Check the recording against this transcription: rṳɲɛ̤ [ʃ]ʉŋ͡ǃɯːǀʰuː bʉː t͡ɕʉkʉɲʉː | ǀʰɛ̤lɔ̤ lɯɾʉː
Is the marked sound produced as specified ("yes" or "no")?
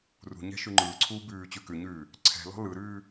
yes